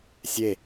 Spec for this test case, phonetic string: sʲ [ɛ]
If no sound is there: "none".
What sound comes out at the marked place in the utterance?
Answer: e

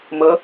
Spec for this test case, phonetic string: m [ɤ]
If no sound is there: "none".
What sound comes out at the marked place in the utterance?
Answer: ɤ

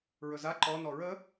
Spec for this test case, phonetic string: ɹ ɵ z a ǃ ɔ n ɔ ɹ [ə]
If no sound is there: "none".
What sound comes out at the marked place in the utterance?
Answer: ə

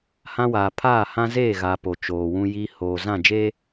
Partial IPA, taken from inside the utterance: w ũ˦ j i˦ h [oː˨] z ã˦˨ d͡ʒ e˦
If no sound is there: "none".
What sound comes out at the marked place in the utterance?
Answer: oː˨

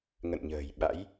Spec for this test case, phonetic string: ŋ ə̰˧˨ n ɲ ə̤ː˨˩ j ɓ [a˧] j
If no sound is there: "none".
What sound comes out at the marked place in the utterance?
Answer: a̰˧˥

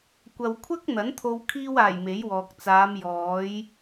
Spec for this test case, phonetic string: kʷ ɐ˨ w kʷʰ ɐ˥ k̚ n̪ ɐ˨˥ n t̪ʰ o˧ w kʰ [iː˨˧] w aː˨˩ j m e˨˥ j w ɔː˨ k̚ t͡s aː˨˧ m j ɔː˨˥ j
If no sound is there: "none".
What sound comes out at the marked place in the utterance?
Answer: iː˧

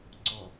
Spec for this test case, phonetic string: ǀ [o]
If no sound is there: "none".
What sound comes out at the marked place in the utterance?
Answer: ɔ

